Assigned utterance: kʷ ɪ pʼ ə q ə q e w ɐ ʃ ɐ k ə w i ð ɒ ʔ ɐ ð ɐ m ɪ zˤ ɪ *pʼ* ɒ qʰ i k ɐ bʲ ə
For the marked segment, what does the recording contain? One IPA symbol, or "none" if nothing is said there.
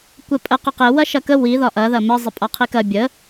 pʼ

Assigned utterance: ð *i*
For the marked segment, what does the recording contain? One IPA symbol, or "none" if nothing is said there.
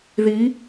i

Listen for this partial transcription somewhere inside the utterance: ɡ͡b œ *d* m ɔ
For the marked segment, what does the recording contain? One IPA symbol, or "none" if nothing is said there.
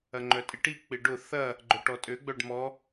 ɖ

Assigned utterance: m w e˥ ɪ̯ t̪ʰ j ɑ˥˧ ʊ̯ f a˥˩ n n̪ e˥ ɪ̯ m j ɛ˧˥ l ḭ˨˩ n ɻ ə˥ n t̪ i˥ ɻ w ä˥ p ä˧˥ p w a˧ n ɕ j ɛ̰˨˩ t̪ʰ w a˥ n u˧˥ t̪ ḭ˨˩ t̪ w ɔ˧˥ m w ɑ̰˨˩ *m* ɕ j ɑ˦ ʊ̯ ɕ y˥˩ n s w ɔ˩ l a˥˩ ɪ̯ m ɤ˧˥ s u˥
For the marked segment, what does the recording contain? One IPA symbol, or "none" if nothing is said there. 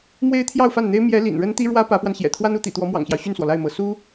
ŋ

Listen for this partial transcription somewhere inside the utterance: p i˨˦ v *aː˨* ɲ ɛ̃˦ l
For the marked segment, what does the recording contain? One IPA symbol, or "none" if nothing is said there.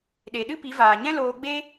aː˨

